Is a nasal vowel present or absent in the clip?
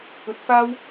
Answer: absent